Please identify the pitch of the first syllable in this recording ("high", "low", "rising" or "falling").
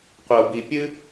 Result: low